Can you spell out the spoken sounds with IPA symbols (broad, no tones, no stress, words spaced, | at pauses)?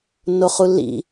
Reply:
nːoχulːḭ